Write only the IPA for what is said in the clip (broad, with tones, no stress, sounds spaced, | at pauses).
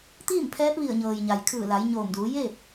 t̪ iː˥˨ m pʰ ɛː˧˥ p̚ ʋ i˧˩ ə̯ ɲ ɤː˩ j ɲ a˩ j kʰ ɯː˧˩ l a˩˧ j ɲ oː˧˩ m d uː˩˧ j e˥˨ p̚